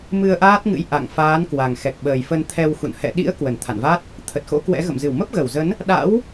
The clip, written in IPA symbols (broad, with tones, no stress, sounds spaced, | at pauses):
m ɨ˧ ə̯ ʔ aː˦˥ t̚ ŋ ɨ̰˧˥ j ʔ a̰˧˨ ŋ f aː˨˦ n k w a˨˩ ŋ x ɛ˨˩ k̚ ɓ əː˨˩ j f ə˧ n t̪ʰ ɛ˧ w x ṵ˧˨ n h ɛ̰˧˨ ɗ ḭ˧˥ ə̯ k w ə˧˩ n t̪ʰ a̰˧˨ n v a˦˥ t̚ | t̪ʰ ə˨˩ t̚ x o̰˧˥ k w ɛ̰˧˥ ɣ ə̰˧˨ m z ɨ˧˩ w m ə˦˥ p̚ ɣ ə˧˩ w z ə˨˦ n | ɗ a̰˧˥ w